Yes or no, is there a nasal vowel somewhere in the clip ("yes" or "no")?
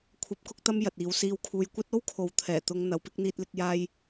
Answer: no